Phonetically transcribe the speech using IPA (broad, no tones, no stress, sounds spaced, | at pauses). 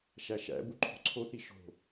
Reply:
ʃ æ ʃ æ̰ b u ǃʰ o̤ ǀʰ o θ i ʃ o̤